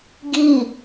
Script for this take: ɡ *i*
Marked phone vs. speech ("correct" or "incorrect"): correct